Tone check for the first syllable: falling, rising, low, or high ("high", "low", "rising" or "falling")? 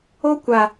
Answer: high